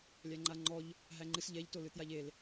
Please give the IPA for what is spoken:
lʲ æ ŋ͡ǃ a ŋ͡ǃ ɔ ʎ | ɦ æ ŋ͡ǃ ɨ s ʎ ɛ ʎ t o l ɨ t j a ʎ e l

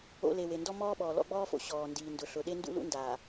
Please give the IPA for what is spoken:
o̰˨ l e˨ w e˨ n d ɔ˦ m ɔː˦ ɓ ɔː˨ l ɔ̰˦ ɡ͡b ɔː˦ f o̰˨ ɕ ɔː˨ n d iː˨ n d ʊ˨ ɬ ʊ˨ ɗ e˦ n d ṵ˦ l ṵ˦ n d aː˨

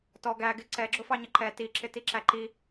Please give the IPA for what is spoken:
t ɔ ɡ æ ɡ ɪ ǀ ɛ ɡ͡ǁ ʊ f ɑ ɲ ʌ ǃ ɛ t i ǁ ɪ t i ǁ æ ǃ i

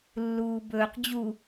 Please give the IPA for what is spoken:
lː uː b ɵː q d͡ʑ u

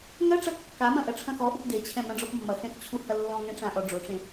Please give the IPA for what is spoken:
ŋ ɐ ʈ͡ʂ ɐ kː a m ɐ̃ ʔ ɐ ʈ͡ʂʰ ɐ̃ x ɔ ʔ u p d e t͡ɕʰ ɛ̃ m ɐ̃ ɖ͡ʐ ɔ p mː ɐ x ɛ̃ x t͡ɕʰ u h ɐ lː ɔ̃ ŋ ɛ̃ ʈ͡ʂ ã ʔ ɔ ɖ͡ʐ o ʈ͡ʂ ẽ

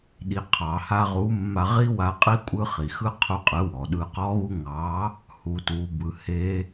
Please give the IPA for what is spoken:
ɗ i˩ qʰ ɑ˩ h a˧ ʁ u˨˥ mː a˧ ʁ i˦˥ w a˨˥ qʼ i˦˥ kʷʼ ɯ˧ χ i˩ x ɯ˦˥ qʰ u˧ qʼ ɯ˨˥ w ɔ˩ ɗ ɯ˧ q ɔ˦˥ ɣ u˦˥ ŋ ɑ˨˥ | h u˩˧ t u˩˧ b ɯ˩˧ h e˦˥

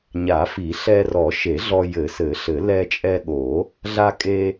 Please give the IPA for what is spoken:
ɲ a˨˩˦ f i˨˩˦ ɬ ɛ˧ r ɔ˨˩˦ ʃ e˨˩˦ ɮ ɔ˧ j ɘ˨˩˦ s ɘ˨˩˦ ɬ ɘ˨˩˦ l ɛ˧ t͡ʃʼ ɛ˧ ɠ o˨˩˦ | ɮ a˧ kʼ e˧

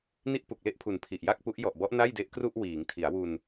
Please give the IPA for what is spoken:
n i˥˩ ʔ p u˨˩ k̚ l e˥˩ ʔ pʰ u˨˩ n pʰ i˨˩ ʔ j a˥˩ k̚ p u˦˥ ʔ j ɔ˨˩ ʔ b ɔ˦˥ ʔ n a˥˩ j d e˦˥ ʔ k r u˥˩ ʔ w iː˩˦ ŋ tʰ i˩˦ a̯ w u˧ n

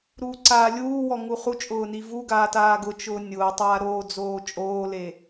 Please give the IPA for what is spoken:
ɾ uː ǀ aː lʲ uː w ɔ ŋ u χ u t͡ʃʼ ʊː n i v u ɡ aː t aː ɡ ʊ t͡ʃ ʊː nʲ ʊː tˤ aː ɾ oː d͡z oː t͡ʃʼ oː l e

